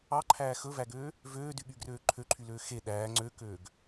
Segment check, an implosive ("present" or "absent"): present